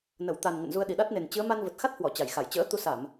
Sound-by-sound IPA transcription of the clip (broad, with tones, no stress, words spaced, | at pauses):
nə˧˩wt̪a˨˩n ŋə̰˧˨nzu˧ə̯ɗi˨˩ ɗa˦˥t̚ne˨˩n t͡ɕɨ˨˦ə̯ma˧n və˨˩t̚xa˦˥t̚hwɔ˧˩ t͡ɕa˧˩jxa˧˩j t͡ɕə̰ː˧˥ t̪u˨˦sa˧˩˨m